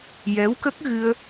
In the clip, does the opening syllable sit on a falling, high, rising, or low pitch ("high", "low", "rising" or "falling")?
rising